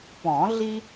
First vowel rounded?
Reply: yes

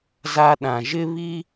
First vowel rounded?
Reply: no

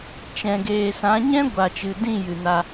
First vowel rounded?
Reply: no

